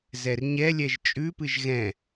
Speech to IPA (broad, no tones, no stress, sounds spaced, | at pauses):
z ɛ r ɲ ɛ lʲ ɛ ʒ t͡ʃʼ ʉ p ɨ ʒ ɣ ɛ̃